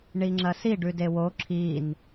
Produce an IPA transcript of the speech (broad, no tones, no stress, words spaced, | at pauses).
ɳiŋ͡ǁɐsi ɖʉdewo ǁʰin